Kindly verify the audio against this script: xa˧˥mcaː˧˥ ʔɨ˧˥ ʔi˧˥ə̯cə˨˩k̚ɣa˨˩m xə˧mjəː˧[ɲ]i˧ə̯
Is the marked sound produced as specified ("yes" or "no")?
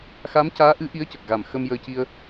no